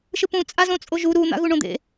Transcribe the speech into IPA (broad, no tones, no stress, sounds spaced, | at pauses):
ʃ ɯ p ũ t͡sʼ a z õ t͡sʼ o ʒ u ɾ u n̪ a̰ ɣ u ɳ õ d̪ ḛ